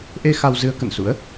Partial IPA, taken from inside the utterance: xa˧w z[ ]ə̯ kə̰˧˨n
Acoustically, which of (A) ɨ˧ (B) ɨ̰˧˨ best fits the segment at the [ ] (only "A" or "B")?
A